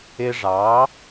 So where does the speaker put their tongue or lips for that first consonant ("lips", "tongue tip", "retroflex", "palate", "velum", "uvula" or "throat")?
retroflex